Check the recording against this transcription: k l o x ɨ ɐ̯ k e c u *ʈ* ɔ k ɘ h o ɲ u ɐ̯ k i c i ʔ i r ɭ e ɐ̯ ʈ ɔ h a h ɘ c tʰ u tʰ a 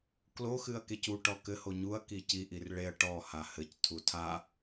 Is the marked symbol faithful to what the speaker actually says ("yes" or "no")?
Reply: yes